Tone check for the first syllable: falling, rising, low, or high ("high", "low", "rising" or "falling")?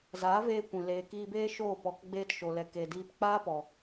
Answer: rising